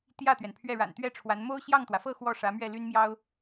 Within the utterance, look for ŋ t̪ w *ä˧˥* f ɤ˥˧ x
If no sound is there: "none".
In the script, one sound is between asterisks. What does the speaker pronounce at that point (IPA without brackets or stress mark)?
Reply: ä˩